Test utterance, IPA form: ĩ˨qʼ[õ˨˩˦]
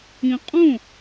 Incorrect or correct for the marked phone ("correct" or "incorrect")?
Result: incorrect